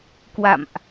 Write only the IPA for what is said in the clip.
k w a̰˧˨ m ʔ

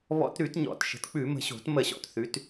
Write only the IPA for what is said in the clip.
β ɔ̰˧˩˧ t ɾ ʉ˧˩˧ t ɲ ɔ̰˨˩ t ʃ ə̤˨˦ t k͡p ʉ˧˩˧ m ə̤˨˩ ɕ o̤˧˩˧ t m ə˧˩˧ ɕ ɔ̰˨˩ t θ ʉ˨˦ t

